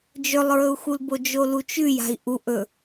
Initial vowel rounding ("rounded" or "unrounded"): rounded